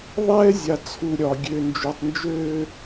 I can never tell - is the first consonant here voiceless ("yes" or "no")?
no